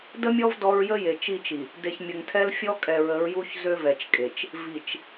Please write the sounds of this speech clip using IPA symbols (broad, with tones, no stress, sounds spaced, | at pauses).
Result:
d ə˦ mʲ ɔ˦ v d ɔ˦ ɹ j ə˦ j e˨ t͡ʃ i˦˨ t͡ʃ i˨ | d e˨ ç mʲ ə˨ ŋ tʰ ɛ˦ l fʲ ɔ˦ kʼ ɛ˨ ɹ ə˨˦ ɹ j u˦ ç z ø˦ v ɛ˨ t͡ʃ kʼ e˨ t͡ʃ | v i˨ t͡ʃ